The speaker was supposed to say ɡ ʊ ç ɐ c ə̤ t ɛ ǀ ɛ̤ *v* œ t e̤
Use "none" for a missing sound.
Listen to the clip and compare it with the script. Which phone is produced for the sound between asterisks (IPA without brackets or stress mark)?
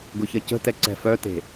f